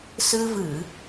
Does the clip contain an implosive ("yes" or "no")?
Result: no